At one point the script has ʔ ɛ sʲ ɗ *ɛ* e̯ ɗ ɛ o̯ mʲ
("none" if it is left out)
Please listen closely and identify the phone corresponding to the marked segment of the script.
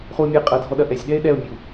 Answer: ɛ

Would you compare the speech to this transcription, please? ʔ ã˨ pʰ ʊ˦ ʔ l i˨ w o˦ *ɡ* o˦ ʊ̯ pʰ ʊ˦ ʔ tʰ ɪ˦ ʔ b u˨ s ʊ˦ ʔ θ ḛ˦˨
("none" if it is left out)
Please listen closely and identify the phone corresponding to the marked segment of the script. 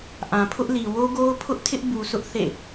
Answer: ɡ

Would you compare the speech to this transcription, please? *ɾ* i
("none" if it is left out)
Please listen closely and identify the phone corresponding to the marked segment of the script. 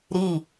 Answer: ɾ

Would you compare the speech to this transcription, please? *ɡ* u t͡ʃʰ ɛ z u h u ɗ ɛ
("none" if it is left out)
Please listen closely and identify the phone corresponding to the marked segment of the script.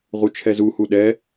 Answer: ʁ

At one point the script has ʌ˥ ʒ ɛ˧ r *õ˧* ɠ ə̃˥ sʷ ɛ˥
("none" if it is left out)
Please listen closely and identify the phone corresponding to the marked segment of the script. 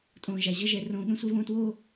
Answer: õ˧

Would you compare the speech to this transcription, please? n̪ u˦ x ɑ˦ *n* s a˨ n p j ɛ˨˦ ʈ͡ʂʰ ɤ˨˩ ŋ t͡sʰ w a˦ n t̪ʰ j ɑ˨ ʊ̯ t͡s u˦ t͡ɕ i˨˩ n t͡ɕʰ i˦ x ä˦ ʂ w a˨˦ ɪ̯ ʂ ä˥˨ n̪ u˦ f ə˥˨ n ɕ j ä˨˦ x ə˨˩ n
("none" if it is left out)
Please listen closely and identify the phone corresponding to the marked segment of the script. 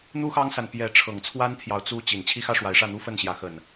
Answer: ŋ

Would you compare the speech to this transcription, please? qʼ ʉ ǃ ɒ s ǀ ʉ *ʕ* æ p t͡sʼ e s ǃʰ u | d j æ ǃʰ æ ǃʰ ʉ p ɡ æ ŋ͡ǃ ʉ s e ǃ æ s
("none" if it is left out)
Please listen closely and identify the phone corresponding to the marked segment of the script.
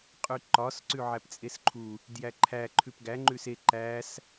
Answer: ʕ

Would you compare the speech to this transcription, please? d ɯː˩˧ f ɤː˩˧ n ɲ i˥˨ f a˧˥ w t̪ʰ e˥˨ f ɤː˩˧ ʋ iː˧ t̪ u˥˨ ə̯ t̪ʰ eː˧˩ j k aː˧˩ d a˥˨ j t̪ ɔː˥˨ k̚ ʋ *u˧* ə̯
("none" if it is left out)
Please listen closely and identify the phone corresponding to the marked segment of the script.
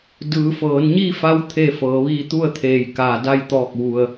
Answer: u˧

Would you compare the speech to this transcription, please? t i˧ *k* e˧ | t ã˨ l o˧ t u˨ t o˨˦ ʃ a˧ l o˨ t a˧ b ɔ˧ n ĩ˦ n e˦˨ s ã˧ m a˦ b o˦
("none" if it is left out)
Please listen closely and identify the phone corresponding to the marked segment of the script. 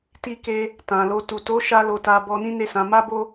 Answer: k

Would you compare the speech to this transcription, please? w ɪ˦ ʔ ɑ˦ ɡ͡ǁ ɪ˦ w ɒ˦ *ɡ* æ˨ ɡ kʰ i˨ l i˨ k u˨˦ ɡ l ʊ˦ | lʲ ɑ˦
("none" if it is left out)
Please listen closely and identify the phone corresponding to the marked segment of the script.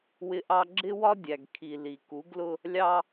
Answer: dʲ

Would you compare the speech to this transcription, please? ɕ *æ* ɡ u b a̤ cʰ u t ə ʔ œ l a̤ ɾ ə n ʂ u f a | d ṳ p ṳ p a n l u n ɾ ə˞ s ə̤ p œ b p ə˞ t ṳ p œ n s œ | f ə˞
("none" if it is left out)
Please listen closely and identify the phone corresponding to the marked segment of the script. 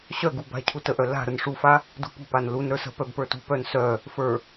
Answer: œ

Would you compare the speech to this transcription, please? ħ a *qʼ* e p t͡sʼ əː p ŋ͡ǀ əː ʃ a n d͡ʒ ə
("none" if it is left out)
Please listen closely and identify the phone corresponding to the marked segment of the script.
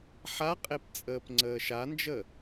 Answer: qʼ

